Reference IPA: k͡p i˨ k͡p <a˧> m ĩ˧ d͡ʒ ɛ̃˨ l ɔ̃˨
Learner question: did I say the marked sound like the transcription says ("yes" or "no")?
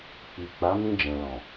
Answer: no